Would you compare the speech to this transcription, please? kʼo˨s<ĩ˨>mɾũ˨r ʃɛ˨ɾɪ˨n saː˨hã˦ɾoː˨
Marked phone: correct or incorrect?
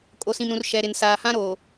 correct